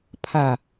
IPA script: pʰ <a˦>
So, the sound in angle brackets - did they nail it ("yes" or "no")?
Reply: no